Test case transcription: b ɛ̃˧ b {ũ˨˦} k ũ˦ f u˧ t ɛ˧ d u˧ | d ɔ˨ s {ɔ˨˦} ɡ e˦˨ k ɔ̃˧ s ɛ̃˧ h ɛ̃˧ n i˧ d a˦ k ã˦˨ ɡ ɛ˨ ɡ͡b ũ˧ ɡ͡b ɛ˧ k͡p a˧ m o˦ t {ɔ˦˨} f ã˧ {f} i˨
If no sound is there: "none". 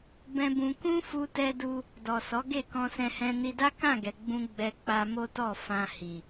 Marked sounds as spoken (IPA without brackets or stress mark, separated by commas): ũ˧, ɔ˨˦, ɔ˦˨, h